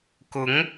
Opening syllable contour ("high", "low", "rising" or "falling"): rising